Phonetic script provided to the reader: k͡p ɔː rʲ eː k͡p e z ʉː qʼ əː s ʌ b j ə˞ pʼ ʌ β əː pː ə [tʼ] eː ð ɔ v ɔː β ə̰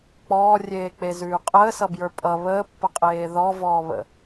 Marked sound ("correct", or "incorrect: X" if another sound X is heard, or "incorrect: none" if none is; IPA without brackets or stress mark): incorrect: qʼ